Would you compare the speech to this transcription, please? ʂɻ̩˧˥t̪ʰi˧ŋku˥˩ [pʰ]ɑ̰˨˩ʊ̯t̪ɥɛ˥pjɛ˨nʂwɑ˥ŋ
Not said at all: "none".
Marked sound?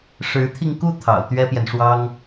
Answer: t̪ʰ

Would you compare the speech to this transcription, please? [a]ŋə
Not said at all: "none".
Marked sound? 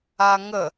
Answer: a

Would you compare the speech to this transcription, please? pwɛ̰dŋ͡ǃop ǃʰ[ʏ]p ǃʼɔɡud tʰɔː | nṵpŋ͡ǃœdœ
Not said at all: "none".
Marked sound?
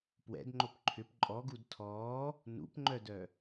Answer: ʏ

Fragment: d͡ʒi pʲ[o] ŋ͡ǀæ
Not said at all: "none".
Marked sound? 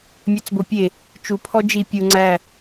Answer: u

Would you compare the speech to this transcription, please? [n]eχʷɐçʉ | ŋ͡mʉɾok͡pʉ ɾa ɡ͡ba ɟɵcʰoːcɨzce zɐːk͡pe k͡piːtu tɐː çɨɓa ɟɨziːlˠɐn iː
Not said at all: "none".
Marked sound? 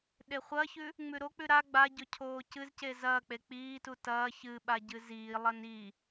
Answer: ɗ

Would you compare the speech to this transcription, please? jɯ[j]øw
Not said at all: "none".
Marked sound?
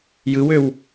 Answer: w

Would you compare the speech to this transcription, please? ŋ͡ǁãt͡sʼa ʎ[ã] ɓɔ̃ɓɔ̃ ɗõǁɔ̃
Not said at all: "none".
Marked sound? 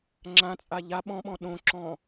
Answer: a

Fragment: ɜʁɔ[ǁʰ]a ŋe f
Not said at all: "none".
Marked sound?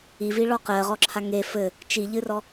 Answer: ǁʰ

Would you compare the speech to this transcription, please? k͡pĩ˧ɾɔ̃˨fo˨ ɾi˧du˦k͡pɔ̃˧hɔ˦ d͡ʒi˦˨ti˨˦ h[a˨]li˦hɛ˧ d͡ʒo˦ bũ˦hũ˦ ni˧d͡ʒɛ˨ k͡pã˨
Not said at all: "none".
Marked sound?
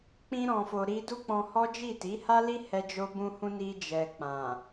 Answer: a˦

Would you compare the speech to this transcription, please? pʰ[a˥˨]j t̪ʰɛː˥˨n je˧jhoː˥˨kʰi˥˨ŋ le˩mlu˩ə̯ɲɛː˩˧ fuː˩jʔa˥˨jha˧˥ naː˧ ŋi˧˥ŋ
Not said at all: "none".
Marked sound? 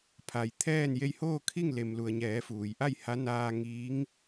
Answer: a˩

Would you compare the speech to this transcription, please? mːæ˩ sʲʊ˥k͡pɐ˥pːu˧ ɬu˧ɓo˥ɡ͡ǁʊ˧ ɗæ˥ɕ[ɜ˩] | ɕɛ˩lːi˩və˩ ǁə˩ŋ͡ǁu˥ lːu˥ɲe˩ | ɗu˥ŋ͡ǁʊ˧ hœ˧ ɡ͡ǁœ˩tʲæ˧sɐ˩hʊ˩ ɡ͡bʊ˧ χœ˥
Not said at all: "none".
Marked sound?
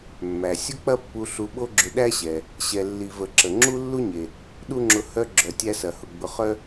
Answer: ɛ˩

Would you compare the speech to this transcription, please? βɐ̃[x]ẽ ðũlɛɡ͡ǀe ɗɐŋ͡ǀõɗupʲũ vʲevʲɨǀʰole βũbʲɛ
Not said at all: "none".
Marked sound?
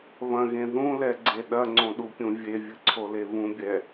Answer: ɣ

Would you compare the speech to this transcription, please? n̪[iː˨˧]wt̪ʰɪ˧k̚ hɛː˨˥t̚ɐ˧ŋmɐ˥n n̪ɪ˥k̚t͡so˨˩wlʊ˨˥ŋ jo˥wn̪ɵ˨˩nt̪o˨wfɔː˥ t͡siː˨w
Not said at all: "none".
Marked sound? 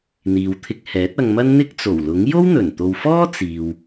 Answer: iː˨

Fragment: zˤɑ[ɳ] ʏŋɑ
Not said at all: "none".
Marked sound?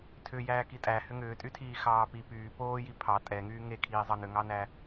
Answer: n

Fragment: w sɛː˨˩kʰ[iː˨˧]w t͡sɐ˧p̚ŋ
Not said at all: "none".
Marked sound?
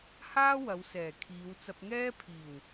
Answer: iː˨˧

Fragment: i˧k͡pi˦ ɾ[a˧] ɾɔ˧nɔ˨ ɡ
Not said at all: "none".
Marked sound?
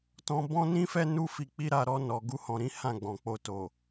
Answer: a˧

